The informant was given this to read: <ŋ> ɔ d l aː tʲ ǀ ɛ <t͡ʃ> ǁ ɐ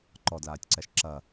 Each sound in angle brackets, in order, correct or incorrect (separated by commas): incorrect, incorrect